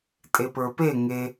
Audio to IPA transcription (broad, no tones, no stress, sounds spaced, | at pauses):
tʼ e p ə˞ p e ŋ e